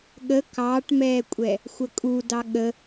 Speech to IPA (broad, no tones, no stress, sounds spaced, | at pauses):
ɠ ə k ɑː ʈ m ɛː kʷʼ ɛ | xʷ ə kʼ u d ɑ ɠ ə